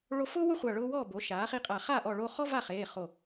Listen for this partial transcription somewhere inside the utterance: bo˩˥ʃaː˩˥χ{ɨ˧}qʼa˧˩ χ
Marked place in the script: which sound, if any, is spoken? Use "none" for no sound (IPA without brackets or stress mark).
i˧